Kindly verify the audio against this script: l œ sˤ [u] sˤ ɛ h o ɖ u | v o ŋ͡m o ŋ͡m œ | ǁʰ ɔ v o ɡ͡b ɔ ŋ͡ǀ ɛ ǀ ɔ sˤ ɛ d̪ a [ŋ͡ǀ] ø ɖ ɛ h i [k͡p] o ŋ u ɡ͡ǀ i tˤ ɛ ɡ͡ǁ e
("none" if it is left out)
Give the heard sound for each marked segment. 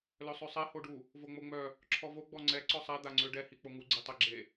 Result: ø, ŋ͡ǀ, k͡p

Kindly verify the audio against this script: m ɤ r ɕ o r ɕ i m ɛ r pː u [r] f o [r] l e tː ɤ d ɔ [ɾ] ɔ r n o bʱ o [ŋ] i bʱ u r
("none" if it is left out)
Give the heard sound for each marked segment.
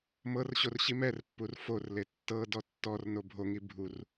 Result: r, r, tː, ŋ

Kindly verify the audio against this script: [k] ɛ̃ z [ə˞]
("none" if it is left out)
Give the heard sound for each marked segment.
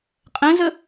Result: qʼ, ə

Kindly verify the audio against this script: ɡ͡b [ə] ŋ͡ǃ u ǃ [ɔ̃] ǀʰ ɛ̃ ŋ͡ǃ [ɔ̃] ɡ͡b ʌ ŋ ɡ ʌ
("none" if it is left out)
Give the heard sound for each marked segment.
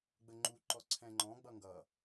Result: ə, ɔ, ɔ̃

